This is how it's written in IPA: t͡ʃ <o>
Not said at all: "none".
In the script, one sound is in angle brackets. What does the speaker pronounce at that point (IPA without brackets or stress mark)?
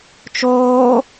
oː